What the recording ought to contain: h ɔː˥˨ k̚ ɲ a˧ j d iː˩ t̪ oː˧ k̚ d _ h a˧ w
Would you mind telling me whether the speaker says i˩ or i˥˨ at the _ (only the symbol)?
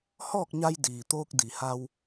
i˩